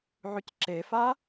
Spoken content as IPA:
ʕycǁefa

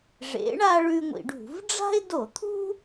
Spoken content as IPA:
ʐḛ˨˥ɳa˦ ɭʉ˦ŋʷḭ˧˩˧ɖṳ˧˩˧v ɖ͡ʐa̤˦ɪ̯do˧˩˧t̪ʰṳ˦

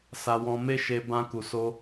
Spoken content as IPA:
sa˧wɔ̃˧me˦ʃe˧ bã˧ku˨ so˧

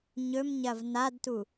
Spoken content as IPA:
ɲɵmɲɐv nadtu

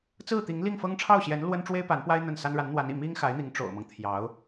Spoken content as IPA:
t͡sɹ̩˥˩t̪i˧˥ŋli˥˩ŋfɤ˥ŋ ʈ͡ʂʰɑ˥˩ʊ̯ɕjɛ˧˥n lwə˥n ʈ͡ʂwe˥ɪ̯pa˧˥npwa˥ɪ̯ n̪ə˥˩nsa˥n ɻa˧˥nn̪wa˧˥nḭ˨˩ mi˥ŋxa˧˥ɪ̯n̪i˧˥ŋ ʈ͡ʂo̰˨˩ʊ̯mɤ˦ŋ t̪ʰjɑ˧˥ʊ̯

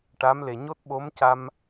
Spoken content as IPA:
ʈa˧˥mle˨˩ ɲo˦˥t̚ ɓo˧˥mca˧m

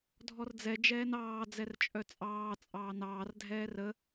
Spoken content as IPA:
dʱɔrd͡zɛ d͡ʒɛːnɑː d͡zɛrt͡ʃʼœt͡sʼɑː t͡sʼɑːnɑːr dʱɛːrə

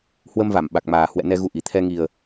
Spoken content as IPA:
hwə˧mva˧˩m ɓa˨˩k̚maː˨˩ hwɛ̰˧˨nɛ˧ɣu˨˦ ʔi˨˩ t̪ʰɛ˧ŋi˨˩ə̯

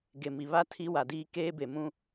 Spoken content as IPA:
ɡe˨ mi˨βa˦ tʰi˦ wa˨diː˦ keː˦be˨mũ˦

